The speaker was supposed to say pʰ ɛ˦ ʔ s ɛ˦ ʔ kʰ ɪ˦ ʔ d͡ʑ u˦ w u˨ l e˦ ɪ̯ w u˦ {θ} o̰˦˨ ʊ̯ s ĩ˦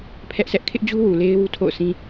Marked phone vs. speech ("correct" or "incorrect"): incorrect